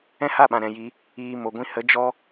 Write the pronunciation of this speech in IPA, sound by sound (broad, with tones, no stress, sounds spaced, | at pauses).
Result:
ɛ̃˦ h a˦˨ ɓ ã˨ ɾ ɛ̃˨ j i˧ | iː˨ m o˨ ɡʷ ĩ˧ h ə˨˦ d͡ʒ ɔ˦